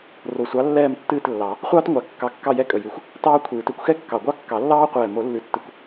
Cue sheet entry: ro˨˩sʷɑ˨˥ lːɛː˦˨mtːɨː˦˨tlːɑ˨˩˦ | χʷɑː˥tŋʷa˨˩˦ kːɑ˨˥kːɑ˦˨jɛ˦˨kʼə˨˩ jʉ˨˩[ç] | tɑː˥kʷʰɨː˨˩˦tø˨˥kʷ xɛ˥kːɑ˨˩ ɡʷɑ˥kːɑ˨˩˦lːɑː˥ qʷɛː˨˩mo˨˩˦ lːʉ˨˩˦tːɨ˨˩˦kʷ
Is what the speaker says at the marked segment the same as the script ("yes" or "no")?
no